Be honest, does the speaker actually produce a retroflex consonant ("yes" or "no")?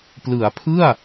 no